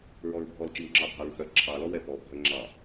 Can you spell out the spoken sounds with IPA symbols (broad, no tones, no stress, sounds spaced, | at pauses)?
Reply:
ɹ ɔ ɹ bʱ ɔ l t͡ʃ i w ŋ͡ǁ ɑ bʱ ɑ ɹ x œ ǁʰ ɑ l ɔ w ɛ p ɔ bʱ œ ŋ͡ǁ ɑ